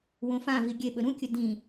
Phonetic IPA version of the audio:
wõfãvi ɡʲeɓɵ ɾũkʲɵ dĩ

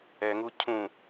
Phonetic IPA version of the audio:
ɛŋu cʰũ

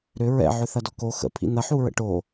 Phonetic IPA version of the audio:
ɾʏ ɹɛ̰ ʕʏθɐdɔko xə̰ pʰḭn̪ɐ ħuɹə̰ʈo

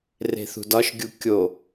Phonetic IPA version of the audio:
re̤θṳdɒʃɡʲu kʲo

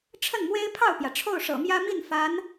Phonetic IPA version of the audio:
ʈ͡ʂʰə˥˩nmwe˥ɪ̯pʰɑ˥˩ʊ̯pjä˩ ʈ͡ʂʰo˥˩ʊ̯ʂɤ̰˨˩mjä˥ mi˥˩n fa˧˥n

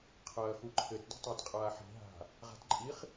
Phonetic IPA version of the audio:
qʰɐːxuǃʰɘt di̤tˤatqʼaːħi̤ ɦa̤ | ʁa̤tǃʼiχ

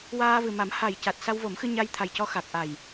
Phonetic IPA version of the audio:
waː˧vɨ˨˩ma˨˩˦m ha˨˩jca˨˩t̚ sa˧wvo˨˩˦mxɨ˧ɲa˧j t̪ʰa˨˩jcɔ˧ xa˨˩k̚ʔa˨˩j

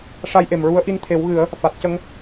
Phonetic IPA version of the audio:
ʂa˧jʔe˨˩mɹu˧˥ə̯ ʔi˧˥nt̪ʰe˨˩˦wɣɨ˨˩˦ə̯ | fa˨˩t̚cə˧ŋ

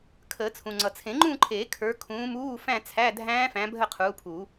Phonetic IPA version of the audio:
kʰəː˨˩˦t͡sʰũ˩ ŋ͡ǀʌ˩t͡sʰẽ˨˩˦ŋ͡ǃũ˥˧ǃʰeː˨˩˦ kʰə˞˨˦ kʰũː˨˦muː˧˥˧fæ̃˥˧ t͡sʰæ˧˥˧dʱæ̃ː˦˥fæ̃˨˦ bʱə˥˧qʰuː˨˦pʰuː˨˩˦

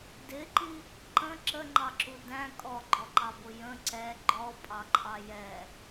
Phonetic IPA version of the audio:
dɪǃi | ǃə̃ ǁəŋ͡ǃɑǁu dæ̃ kʼɔɡ͡ǃɔǃɑbʊ jə̃ ǀɛ ɡ͡ǃɔpʼɑǃʼɑ jɛ

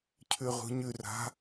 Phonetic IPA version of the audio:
cʰʉʁṳɲʉra̤

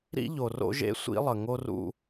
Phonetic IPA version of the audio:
ɾḭ˦ʎo˨ro̰˦ʒḛ˦ sʷḭ˦lˠə˨ ŋo˦rṵ˦

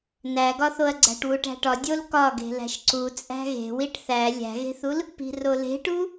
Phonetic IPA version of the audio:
næɡɒθoɐ̯ɡ͡ǀæ̤ʈ wuʈæ̤ʈɒ dʲolkɒ ɡe̤læ̤ʃǀu t͡sʼæ̤ɣe̤ wiʈθæ lʲæ̤ɣe̤θul | pi̤role̤ʈu

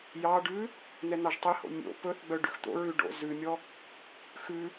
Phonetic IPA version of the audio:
jɑɖʉ | n̪ɛn̪ɑʒtˤeho̰ mʲo̰ pɵθ ɡ͡bœɖʉxt̪o̰ɹʉ ɖo̰zʉmʲɔ | xʉ

